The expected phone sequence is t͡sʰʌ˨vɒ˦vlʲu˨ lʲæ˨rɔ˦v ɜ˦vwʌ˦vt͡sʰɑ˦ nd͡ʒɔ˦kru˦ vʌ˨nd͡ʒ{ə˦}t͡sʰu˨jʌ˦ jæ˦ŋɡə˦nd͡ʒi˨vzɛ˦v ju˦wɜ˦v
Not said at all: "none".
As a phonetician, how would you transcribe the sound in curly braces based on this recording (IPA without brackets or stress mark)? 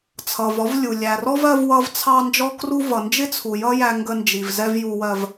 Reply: ɪ˦